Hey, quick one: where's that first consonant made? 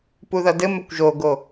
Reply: lips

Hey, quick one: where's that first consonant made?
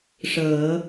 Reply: retroflex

